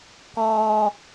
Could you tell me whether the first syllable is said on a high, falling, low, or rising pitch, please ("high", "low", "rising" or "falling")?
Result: low